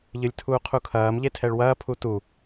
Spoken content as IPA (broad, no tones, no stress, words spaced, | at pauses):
ʎɨlʲtʰuːqʰukʰɐːm ʎetʰɛɭwɐː pʰutu